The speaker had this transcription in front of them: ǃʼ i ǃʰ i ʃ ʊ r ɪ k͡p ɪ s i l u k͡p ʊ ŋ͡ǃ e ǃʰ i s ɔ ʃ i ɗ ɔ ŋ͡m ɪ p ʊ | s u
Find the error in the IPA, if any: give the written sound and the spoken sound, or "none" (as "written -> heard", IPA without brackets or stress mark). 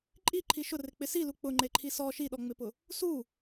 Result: none